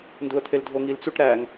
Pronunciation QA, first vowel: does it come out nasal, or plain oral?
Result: oral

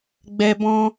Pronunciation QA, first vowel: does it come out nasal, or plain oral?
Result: oral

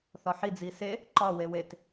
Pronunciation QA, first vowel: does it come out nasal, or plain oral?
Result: oral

